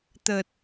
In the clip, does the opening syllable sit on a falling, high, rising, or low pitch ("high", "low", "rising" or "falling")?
low